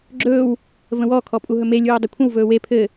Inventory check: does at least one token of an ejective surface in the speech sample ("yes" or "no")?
yes